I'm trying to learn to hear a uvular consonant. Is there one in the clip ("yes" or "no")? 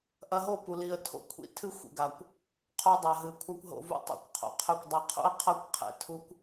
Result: yes